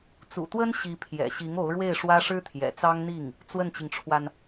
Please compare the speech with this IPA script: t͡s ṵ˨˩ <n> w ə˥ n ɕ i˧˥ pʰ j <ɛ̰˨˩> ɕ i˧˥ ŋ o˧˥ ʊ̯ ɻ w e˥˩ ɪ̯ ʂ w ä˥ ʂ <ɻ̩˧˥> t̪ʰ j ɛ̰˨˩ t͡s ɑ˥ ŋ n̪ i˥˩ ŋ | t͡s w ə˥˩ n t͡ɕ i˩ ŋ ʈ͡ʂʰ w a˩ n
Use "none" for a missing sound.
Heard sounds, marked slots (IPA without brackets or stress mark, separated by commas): t̪, ɛ̰˨˩, ɻ̩˥